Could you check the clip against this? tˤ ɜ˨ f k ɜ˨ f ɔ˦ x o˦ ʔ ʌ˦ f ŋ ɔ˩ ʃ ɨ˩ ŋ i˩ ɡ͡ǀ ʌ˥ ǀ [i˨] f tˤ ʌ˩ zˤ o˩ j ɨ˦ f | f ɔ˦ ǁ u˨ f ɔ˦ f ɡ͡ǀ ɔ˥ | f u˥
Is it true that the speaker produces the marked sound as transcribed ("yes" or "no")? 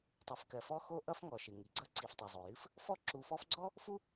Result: yes